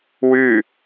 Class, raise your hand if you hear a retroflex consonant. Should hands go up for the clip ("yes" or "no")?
no